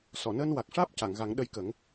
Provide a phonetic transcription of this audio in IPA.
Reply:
s ɔ˨˩˨ n əː˧ n w a˨˩ k̚ ʂ aː˦˥ p̚ c a˨˩˨ ŋ ɣ a˨˩˦ ŋ ɗ ə˧ j k ə˨˩˦ ŋ

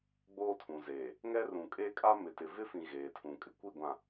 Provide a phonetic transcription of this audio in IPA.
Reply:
ɡ͡b oː˦ tʰ ũ˨ z eː˨ | ŋ ɛ˦ r ũ˨ kʼ eː˦ kʼ a˦ m ɪ˨ t ɪ˨ v ɪ˦ f ĩ˨ ɣ eː˨ tʰ ũ˨ kʼ ɪ˨ kʷ i˦˨ ɡʷ ã˨

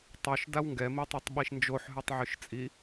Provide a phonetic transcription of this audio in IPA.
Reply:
tˤ o ʃ d a w ŋ ɡ ɛ m i tˤ o tˤ ɓ i ʃ n d͡ʒ o ħ ɦ ʉ tˤ ʕ ʉ ʃ t͡sʼ i

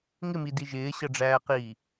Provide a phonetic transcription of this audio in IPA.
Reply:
ŋ ɪ m i d i ʒ ɪː ɕ ʌ ɖ͡ʐ æː q iː

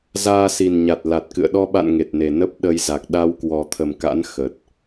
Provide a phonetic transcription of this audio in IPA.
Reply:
z aː˧ s i˨˩ n ɲ a˨˩ t̚ l a˨˩ t̚ k ɨ̰˧˨ ə̯ ɗ ɔ˧ ɓ a̰˧˨ n ŋ e˨˩ t̚ n e˨˩ n ə˦˥ p̚ ɗ ə˧ j z a˨˩ k̚ ɗ a˧ w k w ɔ˨˩ t̪ʰ ə˨˩ m k a̰˧˥ n x ə˨˩ t̚

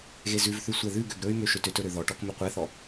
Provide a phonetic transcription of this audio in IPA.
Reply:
ɣ e z ʉ v θ ʉ sʷ ɛ ð ʉ ɡ ø ɡ ɾ ɵ y̯ m ø ʃ ø t ø t ɵ ɾ ø ð ɔ ʈ ɔ k m ɵ qʷ ɛ θ ɔ

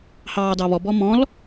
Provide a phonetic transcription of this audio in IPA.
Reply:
h ɑː d ɑ β ɔ b ɔ m ɔ̃ l

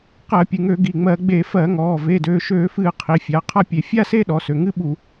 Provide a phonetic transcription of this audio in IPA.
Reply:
q ɜ˧˩˧ pʲ ɨ˩˧˩ ŋ ø˧˩˧ ɡ i˩˧˩ ŋ͡m ɜ˧˩˧ ɡ͡b e˧˩˧ f ɜ˧˩˧ ŋ ɔː˩˧˩ v e˩˧˩ d øː˩˧˩ ʃ øː˧˩˧ f ɨː˧˩˧ qʰ i˩˧˩ fʲ a˩˧˩ qʰ a˥˧ pʲ e˧˩˧ fʲ a˥˧ s e˥˧ ɗ ɔ˩˧˩ s ø˩˧˩ ŋ ɨ˥˧ ɓ u˧˩˧

